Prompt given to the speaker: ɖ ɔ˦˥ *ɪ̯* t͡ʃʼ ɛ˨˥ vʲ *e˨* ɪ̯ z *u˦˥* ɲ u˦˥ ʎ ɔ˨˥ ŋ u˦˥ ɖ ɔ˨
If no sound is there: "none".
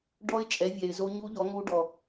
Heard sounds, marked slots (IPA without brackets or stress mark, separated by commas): ɪ̯, ɛ˨, o˦˥